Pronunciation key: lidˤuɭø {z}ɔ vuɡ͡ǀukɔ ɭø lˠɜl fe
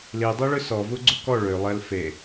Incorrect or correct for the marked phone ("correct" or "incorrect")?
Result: incorrect